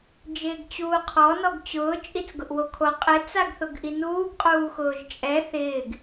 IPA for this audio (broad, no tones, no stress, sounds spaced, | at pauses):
d͡ʒ ɪː ɡ t͡ɕ uː qʰ ɔ n ɔ ɡ t͡ɕ ʊː t͡ʃʼ i t͡s ɡ ʊ ʔ w o kʰ o qʼ ɪ t͡s a ɡ θ ʊ ɡ ʔ i n uː ɡ qʼ uː x ʊː ʒ t͡ʃʼ ɛ θ ɪː ɡ